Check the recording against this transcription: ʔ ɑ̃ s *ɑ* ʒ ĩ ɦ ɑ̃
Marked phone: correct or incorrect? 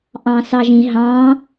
correct